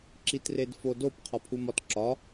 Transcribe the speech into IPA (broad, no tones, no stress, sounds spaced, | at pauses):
ǁ i t r e d f o d o p qʰ ɒ pʰ u m ɒ t ǁ ɒ